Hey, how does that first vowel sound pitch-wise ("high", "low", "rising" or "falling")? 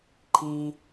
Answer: high